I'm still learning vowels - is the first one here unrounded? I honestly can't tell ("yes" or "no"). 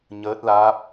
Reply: yes